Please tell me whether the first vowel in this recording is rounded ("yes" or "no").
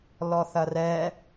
yes